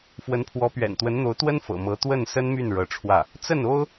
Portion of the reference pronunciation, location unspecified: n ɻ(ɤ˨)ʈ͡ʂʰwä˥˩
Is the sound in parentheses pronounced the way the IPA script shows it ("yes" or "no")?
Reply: no